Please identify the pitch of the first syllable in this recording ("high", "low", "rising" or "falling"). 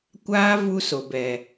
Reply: high